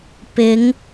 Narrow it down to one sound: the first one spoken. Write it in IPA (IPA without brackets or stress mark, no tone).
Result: p